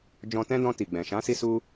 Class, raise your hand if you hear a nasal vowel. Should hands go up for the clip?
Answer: yes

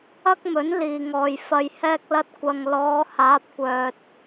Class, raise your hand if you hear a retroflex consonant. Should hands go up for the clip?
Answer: no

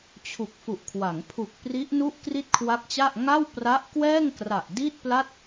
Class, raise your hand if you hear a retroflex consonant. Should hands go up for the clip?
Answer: no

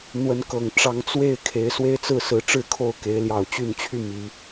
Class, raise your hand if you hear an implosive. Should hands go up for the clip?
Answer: no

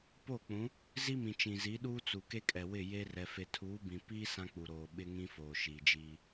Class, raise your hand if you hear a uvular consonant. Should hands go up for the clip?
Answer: no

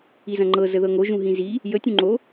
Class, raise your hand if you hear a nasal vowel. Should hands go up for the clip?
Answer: yes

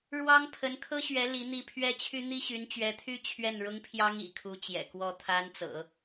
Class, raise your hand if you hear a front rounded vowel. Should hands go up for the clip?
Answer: yes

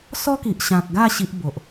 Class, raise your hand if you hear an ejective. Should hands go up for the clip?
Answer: no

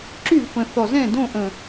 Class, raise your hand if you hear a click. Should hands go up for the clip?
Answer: yes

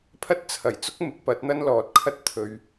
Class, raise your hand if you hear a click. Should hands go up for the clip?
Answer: no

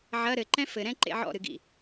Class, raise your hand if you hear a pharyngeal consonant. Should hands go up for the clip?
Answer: yes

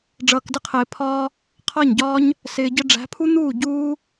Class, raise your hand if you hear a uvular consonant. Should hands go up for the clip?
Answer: yes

